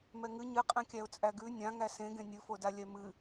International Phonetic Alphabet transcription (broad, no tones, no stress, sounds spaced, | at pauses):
m ɛ ŋ ɨ ɲ ɨ qʼ ɛ̃ kʲ æ ʊ̯ t͡sʼ æ ɡ ʉ nʲ ã ŋ æ s ẽ ɡ ẽ nʲ ɨ f o d a lʲ ɛ m ɨ